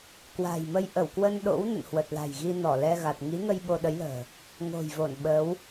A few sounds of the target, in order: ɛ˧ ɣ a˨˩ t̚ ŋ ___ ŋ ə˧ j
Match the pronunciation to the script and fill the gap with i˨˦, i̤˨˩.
i˨˦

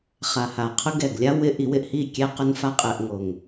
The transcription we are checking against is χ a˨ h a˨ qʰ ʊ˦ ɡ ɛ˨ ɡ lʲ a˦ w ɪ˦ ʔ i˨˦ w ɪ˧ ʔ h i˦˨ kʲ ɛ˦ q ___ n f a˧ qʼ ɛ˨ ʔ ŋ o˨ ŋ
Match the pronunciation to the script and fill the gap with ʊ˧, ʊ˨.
ʊ˧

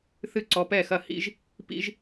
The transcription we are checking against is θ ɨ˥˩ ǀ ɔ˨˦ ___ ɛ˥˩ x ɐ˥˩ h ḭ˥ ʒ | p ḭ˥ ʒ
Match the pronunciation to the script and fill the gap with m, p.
p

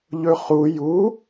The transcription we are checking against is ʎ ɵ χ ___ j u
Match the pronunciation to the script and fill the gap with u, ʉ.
u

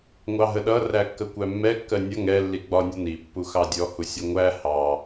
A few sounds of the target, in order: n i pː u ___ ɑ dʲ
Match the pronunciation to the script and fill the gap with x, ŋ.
x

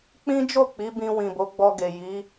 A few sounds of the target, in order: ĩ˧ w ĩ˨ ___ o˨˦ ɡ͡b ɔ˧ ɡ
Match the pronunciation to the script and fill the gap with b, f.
b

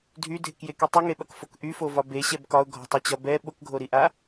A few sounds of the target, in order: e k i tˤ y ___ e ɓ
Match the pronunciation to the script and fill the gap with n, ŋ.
ŋ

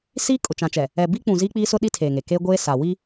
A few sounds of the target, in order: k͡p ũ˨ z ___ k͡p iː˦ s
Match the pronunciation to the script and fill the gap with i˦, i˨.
i˦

